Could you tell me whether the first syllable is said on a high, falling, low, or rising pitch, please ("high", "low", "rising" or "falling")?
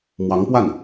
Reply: rising